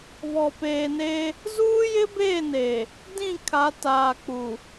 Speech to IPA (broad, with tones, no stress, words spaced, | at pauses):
βɔ˨peː˨neː˦ | zuː˦ jɪ˦beː˦˨neː˨ | dĩ˦˨ kʰa˨˦taː˨k͡pu˨